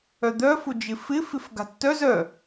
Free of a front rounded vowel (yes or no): no